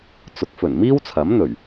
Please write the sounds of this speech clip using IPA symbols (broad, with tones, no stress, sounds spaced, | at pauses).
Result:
t͡s ʊ˨˥ k̚ f ɵ˨˩ n m iː˥ w t͡sʰ ɐ˨˥ m n̪ ɵ˨˩ ɥ